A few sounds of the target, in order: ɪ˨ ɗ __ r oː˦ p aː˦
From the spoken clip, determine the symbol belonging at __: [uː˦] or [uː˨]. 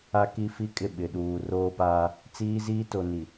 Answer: uː˨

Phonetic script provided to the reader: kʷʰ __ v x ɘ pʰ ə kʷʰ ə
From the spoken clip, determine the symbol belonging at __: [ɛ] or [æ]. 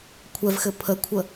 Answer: ɛ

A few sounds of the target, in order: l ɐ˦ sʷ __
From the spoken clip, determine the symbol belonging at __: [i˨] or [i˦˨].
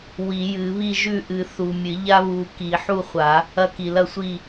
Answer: i˦˨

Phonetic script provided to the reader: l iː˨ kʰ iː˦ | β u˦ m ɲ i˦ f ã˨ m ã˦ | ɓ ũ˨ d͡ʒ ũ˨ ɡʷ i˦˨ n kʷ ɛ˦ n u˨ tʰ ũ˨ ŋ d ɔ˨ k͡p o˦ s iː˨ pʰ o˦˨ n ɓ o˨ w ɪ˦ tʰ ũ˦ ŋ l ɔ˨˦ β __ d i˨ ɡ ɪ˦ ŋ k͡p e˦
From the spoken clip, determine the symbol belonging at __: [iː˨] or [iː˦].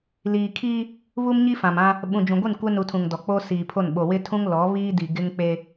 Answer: iː˦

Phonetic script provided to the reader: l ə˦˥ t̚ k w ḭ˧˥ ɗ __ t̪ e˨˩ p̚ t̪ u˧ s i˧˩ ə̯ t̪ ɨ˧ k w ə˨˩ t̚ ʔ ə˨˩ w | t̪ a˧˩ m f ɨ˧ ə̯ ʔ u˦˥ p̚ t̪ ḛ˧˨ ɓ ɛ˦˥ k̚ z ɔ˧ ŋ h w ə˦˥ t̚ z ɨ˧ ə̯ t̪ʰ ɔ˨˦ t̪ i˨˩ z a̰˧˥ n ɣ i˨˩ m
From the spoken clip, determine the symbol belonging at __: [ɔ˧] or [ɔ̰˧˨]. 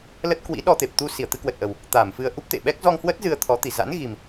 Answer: ɔ˧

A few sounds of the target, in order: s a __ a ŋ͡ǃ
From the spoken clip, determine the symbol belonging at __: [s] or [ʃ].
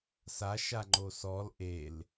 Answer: ʃ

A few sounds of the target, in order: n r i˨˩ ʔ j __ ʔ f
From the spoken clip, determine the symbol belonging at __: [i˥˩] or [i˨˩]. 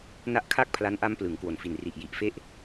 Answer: i˨˩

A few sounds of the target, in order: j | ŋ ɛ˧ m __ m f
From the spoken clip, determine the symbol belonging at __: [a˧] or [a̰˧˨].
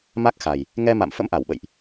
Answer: a̰˧˨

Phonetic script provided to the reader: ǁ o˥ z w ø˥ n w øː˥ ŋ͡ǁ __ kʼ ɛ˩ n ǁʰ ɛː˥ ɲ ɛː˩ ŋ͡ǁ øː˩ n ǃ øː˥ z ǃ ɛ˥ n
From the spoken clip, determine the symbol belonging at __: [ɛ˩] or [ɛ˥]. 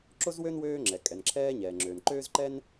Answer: ɛ˩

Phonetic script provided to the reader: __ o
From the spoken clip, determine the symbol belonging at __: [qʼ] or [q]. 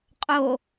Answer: qʼ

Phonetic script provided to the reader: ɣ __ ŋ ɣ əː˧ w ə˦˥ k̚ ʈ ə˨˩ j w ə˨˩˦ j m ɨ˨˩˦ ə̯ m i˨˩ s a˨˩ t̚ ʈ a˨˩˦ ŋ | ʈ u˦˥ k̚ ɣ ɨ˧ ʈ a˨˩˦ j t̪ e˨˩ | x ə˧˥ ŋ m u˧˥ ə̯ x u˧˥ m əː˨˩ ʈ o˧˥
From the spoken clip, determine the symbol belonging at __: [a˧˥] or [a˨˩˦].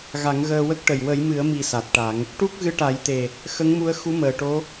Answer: a˨˩˦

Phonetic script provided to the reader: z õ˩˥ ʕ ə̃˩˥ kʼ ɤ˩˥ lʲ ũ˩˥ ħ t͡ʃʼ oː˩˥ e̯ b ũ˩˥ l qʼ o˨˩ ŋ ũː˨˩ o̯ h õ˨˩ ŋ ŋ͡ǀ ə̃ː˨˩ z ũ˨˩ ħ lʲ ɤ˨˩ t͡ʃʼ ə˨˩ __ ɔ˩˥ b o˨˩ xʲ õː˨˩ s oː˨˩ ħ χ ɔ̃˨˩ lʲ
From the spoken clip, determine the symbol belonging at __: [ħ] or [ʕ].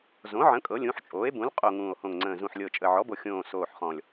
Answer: ʕ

